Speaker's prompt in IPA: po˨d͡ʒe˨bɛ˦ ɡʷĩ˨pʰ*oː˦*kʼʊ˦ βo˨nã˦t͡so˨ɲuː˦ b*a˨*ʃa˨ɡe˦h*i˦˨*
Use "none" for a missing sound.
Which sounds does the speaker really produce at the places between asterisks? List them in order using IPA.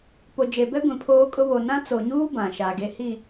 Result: oː˦, ã˨, i˦˨

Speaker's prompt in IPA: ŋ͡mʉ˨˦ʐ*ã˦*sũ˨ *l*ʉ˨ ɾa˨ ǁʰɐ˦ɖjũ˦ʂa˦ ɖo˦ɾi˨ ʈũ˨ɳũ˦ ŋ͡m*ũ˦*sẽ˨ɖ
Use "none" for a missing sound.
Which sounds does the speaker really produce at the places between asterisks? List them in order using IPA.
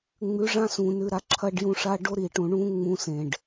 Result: ã˦, n, ũ˦

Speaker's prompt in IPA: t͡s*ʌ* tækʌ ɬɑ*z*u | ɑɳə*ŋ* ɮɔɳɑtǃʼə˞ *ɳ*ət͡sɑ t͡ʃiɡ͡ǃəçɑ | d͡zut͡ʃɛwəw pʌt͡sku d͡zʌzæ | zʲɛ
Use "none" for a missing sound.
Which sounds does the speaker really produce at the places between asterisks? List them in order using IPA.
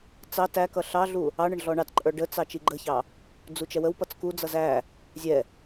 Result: ɑ, ɮ, ɳ, ɖ

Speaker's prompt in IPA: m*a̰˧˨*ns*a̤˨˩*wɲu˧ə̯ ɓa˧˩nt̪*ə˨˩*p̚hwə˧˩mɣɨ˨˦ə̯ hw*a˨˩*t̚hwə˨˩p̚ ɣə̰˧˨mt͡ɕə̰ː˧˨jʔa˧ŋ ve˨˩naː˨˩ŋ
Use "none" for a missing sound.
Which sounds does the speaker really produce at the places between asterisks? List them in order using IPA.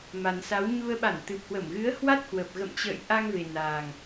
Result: a˨˩, a˨˦, ɨ˨˩, a˦˥

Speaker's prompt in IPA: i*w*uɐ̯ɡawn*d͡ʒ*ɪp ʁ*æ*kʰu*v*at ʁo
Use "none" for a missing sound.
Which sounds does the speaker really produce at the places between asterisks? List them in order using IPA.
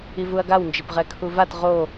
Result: v, d͡ʒ, ɛ, v

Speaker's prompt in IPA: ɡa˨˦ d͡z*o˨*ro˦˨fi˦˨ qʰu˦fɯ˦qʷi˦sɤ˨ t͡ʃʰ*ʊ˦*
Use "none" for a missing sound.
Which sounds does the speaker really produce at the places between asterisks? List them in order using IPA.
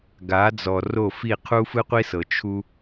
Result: ɔ˨, u˦

